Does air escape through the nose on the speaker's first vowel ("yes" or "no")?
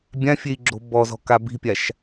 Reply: yes